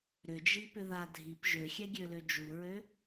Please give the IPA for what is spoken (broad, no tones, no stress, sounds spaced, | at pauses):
ɾ ʏ d͡ʒ i p ʏ ð a dʱ i p ʒ ø xʲ ɛ ɡʲ ø l ø d͡ʒ u ɹ ø